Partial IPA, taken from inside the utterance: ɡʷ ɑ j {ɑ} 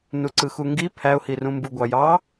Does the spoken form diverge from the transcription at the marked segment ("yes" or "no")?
no